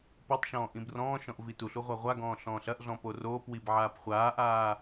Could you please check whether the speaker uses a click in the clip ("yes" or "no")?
no